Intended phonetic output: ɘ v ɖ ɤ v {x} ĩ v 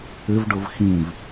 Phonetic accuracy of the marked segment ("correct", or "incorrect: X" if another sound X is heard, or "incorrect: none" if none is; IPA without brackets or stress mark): correct